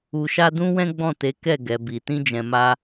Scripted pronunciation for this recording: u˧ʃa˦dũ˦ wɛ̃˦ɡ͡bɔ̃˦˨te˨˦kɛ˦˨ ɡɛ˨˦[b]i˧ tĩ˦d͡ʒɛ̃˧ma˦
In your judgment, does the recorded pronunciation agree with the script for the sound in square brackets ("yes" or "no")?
yes